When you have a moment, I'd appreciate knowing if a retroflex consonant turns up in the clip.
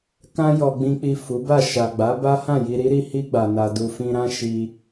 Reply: no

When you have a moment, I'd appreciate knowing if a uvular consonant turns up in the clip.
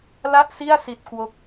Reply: no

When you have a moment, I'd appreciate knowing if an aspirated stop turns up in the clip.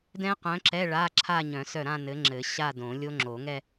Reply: yes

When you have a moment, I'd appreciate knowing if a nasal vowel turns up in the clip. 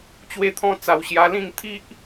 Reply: yes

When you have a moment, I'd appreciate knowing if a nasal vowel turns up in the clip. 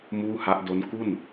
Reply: no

